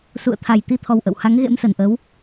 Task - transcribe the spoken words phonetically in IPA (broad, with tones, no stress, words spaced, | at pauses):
sṵ˧˨ə̯ t̪ʰa˨˩j t̪i˨˦t̪ʰɔ˨˩w ʔə̰˧˨w ha˨˦ŋɣḛ˧˥msə˧˩nʔəː˨˦w